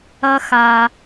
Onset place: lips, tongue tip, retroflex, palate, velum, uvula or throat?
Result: velum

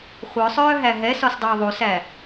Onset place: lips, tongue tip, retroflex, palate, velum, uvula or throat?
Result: uvula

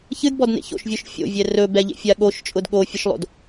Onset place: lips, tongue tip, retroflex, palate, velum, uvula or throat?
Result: palate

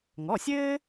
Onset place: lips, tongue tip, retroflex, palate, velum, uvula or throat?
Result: velum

